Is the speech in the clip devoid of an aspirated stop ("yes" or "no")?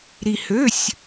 yes